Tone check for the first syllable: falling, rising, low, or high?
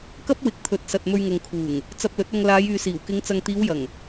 high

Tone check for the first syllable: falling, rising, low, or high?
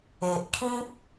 low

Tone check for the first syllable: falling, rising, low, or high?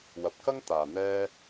rising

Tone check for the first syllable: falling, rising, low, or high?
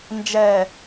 low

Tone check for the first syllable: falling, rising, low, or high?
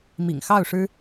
low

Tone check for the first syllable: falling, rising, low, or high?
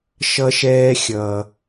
high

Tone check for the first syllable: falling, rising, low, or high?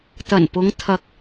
low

